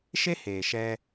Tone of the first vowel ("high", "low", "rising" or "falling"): high